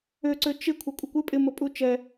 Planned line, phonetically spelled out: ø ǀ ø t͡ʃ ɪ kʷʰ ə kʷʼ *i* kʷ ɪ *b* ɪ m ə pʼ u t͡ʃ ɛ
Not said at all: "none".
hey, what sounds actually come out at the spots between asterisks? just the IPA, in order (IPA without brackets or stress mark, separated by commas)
ɪ, pʼ